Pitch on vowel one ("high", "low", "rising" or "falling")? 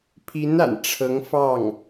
rising